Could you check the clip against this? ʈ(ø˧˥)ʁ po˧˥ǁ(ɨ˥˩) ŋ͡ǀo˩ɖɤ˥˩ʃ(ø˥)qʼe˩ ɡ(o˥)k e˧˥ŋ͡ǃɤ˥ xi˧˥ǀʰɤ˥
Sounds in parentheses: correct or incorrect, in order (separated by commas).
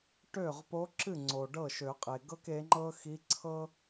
incorrect, correct, incorrect, incorrect